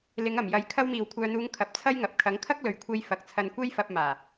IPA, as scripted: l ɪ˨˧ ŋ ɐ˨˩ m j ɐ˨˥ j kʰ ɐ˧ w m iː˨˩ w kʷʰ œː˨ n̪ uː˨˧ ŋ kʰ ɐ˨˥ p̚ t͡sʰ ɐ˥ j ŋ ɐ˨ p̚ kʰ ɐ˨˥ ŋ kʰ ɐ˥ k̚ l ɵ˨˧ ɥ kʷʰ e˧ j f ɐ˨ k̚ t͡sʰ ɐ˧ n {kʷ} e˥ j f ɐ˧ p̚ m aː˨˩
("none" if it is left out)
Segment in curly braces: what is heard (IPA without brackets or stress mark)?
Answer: kʷ